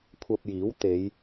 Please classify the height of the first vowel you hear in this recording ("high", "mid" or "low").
low